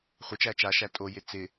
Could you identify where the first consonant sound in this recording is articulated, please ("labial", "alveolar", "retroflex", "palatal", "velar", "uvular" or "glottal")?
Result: uvular